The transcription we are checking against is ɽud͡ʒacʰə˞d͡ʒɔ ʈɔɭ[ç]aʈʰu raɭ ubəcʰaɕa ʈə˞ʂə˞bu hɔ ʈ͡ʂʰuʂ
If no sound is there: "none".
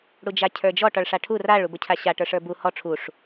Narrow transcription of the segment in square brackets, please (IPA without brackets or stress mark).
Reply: ʂ